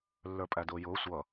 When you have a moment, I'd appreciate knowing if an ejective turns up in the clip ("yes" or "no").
yes